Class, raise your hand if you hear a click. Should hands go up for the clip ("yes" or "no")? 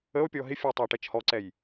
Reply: yes